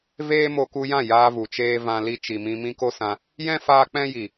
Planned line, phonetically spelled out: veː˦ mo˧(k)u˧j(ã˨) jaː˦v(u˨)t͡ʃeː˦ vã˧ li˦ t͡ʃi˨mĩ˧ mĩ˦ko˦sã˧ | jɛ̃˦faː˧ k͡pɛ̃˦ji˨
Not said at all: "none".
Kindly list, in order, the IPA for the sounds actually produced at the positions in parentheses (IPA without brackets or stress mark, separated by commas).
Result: k, ã˦˨, u˨